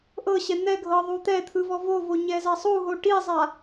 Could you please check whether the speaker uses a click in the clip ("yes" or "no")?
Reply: no